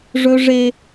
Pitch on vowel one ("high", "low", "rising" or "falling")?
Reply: high